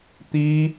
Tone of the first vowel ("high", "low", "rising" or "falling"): high